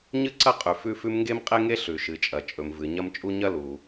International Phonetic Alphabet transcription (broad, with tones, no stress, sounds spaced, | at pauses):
ɲ ɨ˥ ǀ ɐ˥ qʼ ʉ˩ f ʉ˥ f ʉ˥ m ŋ ɡ e˥ m qʼ e˥ ŋ e˥ ɬ ʉ˩ ʃ ɨ˩ t͡ʃʼ ɐ˩ t͡ʃʼ ɵ˩ m v ɨ˩ ɲ ɐ˥ m t͡ʃʼ u˥ ɲ ɐ˥ l u˩